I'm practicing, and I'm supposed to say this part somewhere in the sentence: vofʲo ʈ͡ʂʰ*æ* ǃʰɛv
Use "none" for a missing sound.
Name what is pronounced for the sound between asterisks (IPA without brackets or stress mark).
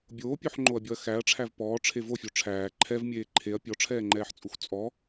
æː